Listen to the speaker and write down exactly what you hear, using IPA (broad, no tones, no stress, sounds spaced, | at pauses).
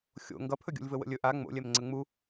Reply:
xʲ o̰ ŋ ɡ ʌ pʰ ɵ ɡʲ o̰ lʲ v ə w ə̰ lʲ ɵ ʔ a ŋ͡m o̰ lʲ ɛ m ŋ͡ǀ ə ŋ͡m u